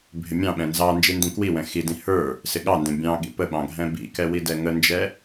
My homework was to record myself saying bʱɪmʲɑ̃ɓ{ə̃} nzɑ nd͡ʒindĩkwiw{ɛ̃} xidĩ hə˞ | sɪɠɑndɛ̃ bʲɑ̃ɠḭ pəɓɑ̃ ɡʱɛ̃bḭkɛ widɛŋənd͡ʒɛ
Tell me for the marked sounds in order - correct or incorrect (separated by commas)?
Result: incorrect, correct